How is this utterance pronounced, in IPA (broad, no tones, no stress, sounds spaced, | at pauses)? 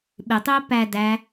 ɓ ɪ tˤ ɪː p æ d æ